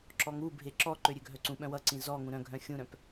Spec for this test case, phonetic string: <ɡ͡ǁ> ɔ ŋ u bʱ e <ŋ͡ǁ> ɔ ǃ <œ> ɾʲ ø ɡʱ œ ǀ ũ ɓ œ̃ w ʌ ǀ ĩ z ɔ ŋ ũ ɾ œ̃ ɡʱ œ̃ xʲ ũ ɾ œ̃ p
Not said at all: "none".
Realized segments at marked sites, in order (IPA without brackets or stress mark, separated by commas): ǁ, ǁ, ø